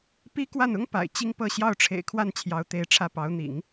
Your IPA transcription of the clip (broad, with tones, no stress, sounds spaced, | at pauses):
p i˥ k w a˥˩ n ʊ˥ ŋ p a̰˨˩ ɪ̯ t͡ɕ i˥ ŋ p ɤ˥˧ ɕ j ɑ˥˩ ʊ̯ ʈ͡ʂʰ ḛ˨˩ ɪ̯ kʰ w a˥˩ n t͡ɕʰ j ɑ˧˥ ʊ̯ t̪ e˧˥ ɪ̯ ʈ͡ʂʰ ä˥˩ p ɑ˧˥ ʊ̯ n̪ ḭ˨˩˦ ŋ